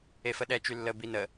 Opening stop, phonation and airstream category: implosive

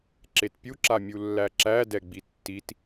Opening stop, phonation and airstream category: click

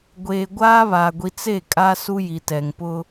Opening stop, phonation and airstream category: plain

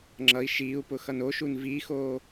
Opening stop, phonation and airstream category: click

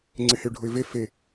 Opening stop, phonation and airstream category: click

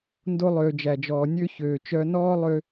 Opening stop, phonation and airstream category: plain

